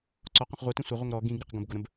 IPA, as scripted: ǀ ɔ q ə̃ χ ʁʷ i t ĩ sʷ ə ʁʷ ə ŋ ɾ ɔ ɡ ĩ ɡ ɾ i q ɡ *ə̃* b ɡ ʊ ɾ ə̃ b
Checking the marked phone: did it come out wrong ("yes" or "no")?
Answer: no